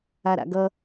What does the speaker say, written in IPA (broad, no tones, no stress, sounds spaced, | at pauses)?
a ɾ a̰ ɡ ʌ